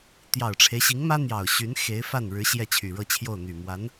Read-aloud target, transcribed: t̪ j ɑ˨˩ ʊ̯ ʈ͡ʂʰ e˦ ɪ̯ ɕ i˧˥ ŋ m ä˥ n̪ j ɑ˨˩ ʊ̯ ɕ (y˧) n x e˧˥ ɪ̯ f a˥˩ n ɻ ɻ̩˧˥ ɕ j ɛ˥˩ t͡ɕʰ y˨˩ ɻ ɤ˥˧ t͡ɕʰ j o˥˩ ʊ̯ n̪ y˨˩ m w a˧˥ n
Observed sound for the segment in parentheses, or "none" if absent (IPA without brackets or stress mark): y˧˥